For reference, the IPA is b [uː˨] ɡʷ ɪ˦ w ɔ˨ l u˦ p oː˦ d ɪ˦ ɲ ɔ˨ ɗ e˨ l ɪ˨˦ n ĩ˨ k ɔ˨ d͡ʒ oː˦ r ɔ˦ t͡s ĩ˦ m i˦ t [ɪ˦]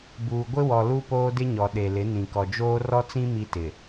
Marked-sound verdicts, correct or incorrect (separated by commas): correct, incorrect